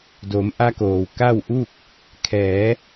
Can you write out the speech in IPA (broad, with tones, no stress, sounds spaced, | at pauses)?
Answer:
d o˩˧ m ʔ a˧ k oː˩ w k a˥˨ w ʔ uː˥˨ k̚ | kʰ ɛː˩˧